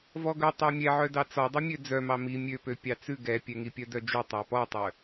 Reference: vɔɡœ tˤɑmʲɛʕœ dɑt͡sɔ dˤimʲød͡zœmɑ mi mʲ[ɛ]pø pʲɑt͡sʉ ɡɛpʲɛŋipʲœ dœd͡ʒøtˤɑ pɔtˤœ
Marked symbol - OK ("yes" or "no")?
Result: no